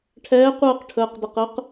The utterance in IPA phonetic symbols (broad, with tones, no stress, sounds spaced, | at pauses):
ʈʰ ɛː˨˥ qʷ əː˦˨ q ʈʰ əː˩˧˩ q d ə˩˧˩ q ə˨˥ q